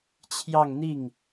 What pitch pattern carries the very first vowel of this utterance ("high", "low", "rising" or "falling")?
falling